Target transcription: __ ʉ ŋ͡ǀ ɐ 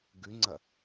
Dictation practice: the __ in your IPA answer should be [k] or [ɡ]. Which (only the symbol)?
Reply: ɡ